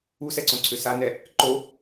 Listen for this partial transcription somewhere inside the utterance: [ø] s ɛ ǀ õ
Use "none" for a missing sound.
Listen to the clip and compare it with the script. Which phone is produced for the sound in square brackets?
u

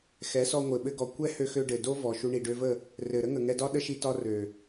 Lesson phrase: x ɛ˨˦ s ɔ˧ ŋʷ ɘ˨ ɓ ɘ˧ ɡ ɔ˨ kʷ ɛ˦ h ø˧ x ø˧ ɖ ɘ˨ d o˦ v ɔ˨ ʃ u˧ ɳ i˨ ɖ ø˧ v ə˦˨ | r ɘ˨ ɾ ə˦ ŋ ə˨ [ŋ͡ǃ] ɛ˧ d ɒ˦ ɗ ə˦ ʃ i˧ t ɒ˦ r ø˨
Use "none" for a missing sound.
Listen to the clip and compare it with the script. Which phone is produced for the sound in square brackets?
ŋ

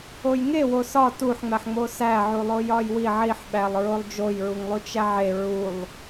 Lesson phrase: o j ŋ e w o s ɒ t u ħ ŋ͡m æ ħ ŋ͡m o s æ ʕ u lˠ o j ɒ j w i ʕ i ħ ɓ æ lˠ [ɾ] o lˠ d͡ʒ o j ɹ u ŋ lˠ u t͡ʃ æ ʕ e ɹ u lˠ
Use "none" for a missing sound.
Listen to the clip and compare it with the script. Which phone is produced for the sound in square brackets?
ɹ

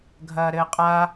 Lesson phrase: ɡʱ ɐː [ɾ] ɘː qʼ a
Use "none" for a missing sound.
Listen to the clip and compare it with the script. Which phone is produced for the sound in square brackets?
ɾ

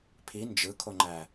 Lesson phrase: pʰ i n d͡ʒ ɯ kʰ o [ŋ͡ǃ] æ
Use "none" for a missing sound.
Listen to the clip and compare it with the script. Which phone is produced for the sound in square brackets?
ŋ͡ǃ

